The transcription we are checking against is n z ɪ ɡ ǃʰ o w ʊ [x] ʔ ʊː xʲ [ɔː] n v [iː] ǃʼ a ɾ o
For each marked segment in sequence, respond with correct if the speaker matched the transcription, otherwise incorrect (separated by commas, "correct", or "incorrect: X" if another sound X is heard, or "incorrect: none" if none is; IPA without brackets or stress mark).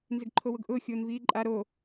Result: incorrect: ɡ, incorrect: oː, correct